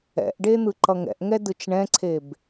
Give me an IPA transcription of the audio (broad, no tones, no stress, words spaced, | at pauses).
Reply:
ɛ̰ʔɖe n̪ɯǃʌŋɛ̰ʔŋɛ dɯt͡ʃɳɛ̃ǀʰeb